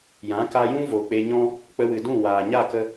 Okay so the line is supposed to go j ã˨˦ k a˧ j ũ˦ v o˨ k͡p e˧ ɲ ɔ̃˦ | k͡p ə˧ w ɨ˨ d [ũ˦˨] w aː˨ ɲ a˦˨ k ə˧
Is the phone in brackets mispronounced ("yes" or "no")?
no